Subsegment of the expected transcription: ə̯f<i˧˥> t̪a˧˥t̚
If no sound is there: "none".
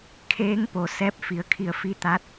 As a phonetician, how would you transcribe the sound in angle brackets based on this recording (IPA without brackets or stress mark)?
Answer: i˧˥